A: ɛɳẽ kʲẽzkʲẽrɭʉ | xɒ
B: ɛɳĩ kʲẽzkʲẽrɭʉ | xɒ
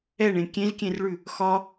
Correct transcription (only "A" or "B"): A